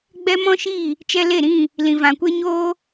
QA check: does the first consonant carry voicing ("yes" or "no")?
yes